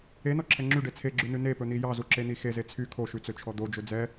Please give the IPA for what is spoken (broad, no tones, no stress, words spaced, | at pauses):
enɔǁʰɛ ŋ͡ǁyɖe t͡sʰeɡ͡ǁʉnʉ nepɵn̪i jɑzuǁen̪i xeze t͡sʰy kʰoʃʉt͡søt͡ʃʰɔ d̪od͡ʒɵ d͡zɛ